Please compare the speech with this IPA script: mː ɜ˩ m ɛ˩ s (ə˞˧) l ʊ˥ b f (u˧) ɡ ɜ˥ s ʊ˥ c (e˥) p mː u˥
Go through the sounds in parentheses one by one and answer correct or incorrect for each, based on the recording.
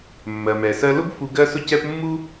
incorrect, correct, incorrect

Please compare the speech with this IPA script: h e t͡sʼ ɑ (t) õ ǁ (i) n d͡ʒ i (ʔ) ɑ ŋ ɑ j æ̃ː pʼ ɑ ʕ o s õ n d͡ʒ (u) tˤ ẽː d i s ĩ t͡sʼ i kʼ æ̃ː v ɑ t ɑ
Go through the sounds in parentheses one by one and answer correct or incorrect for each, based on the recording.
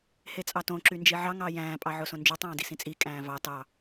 correct, incorrect, incorrect, incorrect

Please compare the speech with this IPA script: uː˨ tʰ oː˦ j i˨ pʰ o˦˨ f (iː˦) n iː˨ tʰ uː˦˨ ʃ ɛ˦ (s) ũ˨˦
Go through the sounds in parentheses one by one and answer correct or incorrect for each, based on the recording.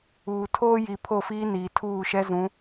correct, incorrect

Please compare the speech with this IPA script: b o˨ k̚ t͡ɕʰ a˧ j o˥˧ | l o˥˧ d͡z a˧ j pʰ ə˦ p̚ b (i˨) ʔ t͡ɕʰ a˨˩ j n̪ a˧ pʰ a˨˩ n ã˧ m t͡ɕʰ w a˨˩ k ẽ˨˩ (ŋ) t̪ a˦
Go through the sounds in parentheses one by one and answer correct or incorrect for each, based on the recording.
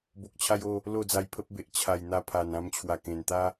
incorrect, incorrect

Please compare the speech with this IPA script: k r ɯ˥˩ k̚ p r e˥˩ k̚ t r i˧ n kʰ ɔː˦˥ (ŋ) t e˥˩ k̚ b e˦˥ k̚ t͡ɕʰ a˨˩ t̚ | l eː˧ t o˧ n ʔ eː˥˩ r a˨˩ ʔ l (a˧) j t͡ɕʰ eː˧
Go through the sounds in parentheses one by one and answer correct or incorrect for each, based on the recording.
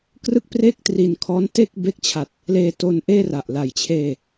incorrect, incorrect

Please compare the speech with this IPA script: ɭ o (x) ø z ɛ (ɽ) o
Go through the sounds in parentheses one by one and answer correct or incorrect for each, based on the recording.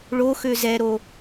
correct, incorrect

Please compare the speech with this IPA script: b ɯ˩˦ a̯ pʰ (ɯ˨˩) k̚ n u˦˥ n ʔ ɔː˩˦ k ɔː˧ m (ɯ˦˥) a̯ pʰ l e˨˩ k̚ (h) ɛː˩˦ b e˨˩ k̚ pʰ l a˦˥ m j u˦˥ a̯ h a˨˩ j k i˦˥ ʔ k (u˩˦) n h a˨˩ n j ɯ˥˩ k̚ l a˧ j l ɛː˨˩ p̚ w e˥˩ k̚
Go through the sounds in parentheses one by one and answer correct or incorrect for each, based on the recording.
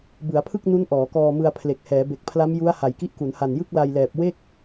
incorrect, incorrect, correct, correct

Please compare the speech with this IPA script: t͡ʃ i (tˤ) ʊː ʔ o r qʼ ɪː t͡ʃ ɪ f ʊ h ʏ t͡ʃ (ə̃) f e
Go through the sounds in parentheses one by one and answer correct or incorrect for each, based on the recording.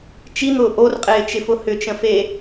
incorrect, correct

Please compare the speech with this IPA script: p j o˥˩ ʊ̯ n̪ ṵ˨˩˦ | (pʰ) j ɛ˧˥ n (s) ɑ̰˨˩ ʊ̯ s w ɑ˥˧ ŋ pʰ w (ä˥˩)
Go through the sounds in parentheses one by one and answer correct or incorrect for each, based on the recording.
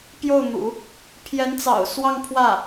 correct, incorrect, correct

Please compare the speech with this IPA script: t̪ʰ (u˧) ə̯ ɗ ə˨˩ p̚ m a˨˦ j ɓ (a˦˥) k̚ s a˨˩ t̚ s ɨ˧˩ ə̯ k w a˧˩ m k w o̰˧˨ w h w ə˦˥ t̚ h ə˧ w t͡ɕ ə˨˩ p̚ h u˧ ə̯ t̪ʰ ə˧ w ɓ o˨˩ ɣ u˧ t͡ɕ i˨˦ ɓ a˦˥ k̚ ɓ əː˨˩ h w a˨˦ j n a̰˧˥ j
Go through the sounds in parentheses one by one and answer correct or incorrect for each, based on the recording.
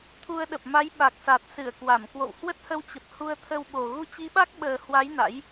correct, incorrect

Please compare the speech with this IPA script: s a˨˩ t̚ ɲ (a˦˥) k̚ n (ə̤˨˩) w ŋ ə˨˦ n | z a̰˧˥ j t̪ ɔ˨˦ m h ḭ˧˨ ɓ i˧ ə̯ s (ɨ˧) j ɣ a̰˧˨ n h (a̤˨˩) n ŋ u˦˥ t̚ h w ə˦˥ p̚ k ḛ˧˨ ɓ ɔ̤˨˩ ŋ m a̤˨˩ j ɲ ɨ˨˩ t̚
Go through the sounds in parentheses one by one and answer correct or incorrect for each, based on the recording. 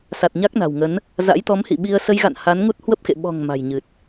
correct, incorrect, incorrect, incorrect

